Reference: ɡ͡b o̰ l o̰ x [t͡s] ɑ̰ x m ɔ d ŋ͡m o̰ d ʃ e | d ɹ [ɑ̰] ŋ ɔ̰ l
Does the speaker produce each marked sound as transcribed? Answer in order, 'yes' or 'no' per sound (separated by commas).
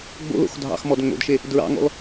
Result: no, yes